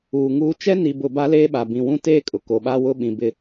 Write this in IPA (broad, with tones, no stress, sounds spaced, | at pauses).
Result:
uː˨ ŋ uː˦ t͡ʃ ɛ˦ n i˨ b ʊ˨ b a˦ l eː˦ ɓ a˨ b ĩ˨ w ũ˦ t eː˦ kʼ ʊ˨ k o˨ ɓ a˦ w ʊ˦ ɓ ĩ˨ b ɪ˦